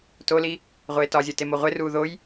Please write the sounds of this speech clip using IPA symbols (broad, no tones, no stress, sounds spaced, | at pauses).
t o l i | ʁʷ eː t ɒ zʲ o t e m o ʁʷ e r uː ð o j